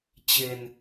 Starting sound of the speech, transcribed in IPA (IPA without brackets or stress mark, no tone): t͡ɕ